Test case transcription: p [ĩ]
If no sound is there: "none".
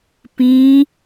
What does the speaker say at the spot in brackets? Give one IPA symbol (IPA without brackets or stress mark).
ĩ